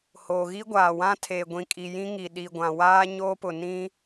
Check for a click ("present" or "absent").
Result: absent